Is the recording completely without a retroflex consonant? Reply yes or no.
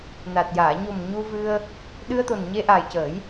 yes